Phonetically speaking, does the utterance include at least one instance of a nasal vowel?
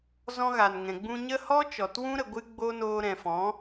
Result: yes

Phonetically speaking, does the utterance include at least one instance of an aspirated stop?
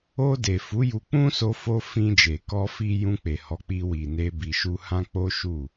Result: no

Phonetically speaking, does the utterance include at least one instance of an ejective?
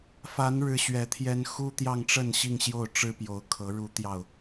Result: no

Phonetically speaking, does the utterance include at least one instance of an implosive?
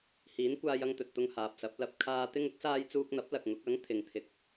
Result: no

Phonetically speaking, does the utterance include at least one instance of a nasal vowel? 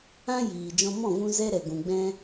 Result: yes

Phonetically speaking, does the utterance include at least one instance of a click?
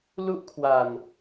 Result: no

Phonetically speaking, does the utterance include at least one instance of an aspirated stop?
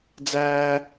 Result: no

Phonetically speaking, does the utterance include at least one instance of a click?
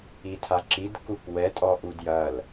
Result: yes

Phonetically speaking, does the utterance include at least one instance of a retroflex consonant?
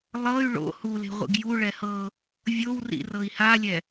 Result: yes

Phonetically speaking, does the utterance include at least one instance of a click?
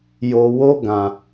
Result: no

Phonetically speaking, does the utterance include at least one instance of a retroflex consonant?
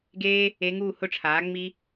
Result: yes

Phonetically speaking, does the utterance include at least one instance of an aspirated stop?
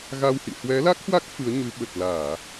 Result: no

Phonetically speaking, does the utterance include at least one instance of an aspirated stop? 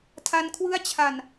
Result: yes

